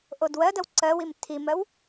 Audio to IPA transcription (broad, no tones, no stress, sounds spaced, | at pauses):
ʔ o d w ɜ d ɜ w ǀ ɜ w i m tʰ i m ɜ w